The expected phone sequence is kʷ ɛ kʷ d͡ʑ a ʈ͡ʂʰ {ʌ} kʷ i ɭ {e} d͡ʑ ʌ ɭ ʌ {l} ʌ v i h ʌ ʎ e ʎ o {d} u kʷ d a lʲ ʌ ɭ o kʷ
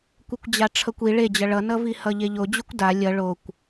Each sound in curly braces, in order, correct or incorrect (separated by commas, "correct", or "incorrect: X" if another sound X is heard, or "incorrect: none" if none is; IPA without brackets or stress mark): correct, correct, incorrect: n, incorrect: d͡ʑ